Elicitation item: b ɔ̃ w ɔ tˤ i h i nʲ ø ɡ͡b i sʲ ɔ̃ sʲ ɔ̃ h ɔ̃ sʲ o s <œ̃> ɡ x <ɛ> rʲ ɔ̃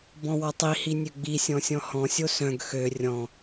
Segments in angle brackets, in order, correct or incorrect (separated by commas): correct, incorrect